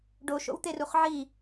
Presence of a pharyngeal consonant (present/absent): present